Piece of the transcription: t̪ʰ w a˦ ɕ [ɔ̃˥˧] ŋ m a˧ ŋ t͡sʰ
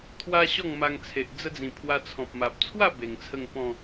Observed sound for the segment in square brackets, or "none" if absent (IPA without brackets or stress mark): ɔ˥˧